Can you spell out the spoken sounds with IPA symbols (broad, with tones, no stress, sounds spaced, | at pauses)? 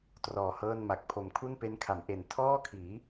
t r ɔː˨˩ h ɤː˥˩ n m a˨˩ k̚ pʰ o˩˦ m kʰ u˥˩ n p e˦˥ n kʰ a˩˦ m ʔ e˨˩ n tʰ ɔː˥˩ kʰ iː˩˦